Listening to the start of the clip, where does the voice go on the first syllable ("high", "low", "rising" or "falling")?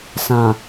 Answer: low